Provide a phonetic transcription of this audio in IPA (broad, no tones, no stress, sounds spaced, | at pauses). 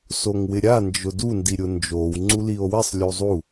s o ŋ w ɪ ɾʲ a n d͡ʒ ʊ d u n d i ɾʲ ʊ n d͡ʒ o w ŋ͡ǀ u l i o̯ w ɪ sˤ lʲ u zˤ u